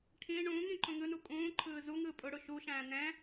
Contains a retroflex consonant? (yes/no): yes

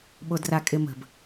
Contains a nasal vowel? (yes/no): no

